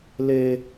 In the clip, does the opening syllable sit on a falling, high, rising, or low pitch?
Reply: high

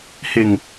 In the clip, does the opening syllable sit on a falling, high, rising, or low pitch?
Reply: low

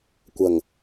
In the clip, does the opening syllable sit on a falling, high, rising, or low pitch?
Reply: low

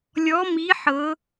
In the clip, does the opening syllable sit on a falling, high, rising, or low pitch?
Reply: rising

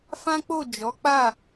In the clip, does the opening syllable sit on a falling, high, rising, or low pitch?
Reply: high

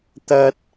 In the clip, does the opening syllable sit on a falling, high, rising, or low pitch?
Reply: high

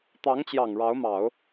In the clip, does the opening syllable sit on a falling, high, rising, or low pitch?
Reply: rising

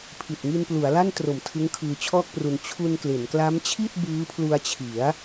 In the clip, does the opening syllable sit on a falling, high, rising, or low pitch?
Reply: low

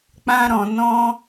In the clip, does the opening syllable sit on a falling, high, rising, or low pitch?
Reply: high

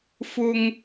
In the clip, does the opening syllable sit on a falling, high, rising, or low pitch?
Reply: high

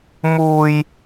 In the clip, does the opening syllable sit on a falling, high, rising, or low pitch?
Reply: high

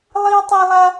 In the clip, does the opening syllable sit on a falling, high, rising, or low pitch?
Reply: high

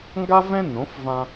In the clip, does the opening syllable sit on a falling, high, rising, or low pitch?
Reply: high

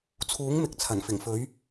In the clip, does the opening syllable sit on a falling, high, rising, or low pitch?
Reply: rising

